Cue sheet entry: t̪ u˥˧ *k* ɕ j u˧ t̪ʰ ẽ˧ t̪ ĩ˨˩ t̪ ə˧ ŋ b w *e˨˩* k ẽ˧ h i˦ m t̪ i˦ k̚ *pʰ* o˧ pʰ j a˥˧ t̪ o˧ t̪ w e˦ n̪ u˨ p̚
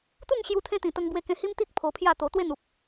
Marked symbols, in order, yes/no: no, no, yes

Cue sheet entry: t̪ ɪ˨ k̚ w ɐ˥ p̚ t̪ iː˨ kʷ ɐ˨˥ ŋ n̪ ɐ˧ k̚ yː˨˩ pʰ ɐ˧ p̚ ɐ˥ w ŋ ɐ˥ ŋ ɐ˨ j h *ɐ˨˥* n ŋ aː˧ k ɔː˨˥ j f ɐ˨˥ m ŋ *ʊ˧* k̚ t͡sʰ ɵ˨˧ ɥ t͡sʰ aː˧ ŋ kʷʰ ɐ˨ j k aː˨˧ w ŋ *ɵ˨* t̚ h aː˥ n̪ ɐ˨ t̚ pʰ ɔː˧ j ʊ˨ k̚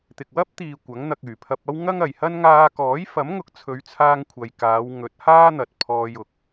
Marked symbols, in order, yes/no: no, no, no

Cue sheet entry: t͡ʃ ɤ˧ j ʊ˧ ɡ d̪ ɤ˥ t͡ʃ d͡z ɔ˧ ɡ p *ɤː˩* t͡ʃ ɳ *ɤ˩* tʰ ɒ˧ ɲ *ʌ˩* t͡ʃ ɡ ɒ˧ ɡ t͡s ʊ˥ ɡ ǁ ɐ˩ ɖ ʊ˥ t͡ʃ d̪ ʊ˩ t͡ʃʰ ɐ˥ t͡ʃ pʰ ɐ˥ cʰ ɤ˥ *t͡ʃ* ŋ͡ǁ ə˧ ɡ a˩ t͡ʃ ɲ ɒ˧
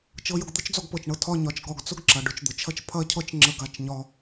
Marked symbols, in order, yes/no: no, no, no, yes

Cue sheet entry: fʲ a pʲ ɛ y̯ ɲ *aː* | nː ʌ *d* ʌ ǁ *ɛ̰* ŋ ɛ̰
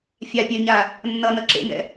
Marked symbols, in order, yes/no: no, no, no

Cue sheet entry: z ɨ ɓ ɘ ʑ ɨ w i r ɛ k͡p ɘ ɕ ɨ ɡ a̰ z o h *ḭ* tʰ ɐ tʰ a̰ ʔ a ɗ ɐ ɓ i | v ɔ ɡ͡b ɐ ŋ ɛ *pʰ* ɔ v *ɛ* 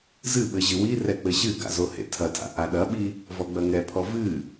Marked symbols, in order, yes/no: no, yes, no

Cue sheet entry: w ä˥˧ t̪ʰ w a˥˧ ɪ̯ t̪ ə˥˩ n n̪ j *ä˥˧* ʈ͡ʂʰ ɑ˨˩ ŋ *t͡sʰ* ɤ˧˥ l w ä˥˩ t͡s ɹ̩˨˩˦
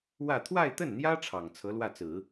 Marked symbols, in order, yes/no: no, yes

